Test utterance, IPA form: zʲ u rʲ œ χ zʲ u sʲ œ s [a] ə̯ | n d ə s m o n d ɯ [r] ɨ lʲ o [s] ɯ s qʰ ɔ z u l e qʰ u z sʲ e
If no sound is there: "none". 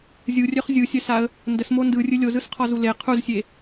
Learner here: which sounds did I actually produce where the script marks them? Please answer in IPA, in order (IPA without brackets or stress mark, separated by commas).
a, rʲ, z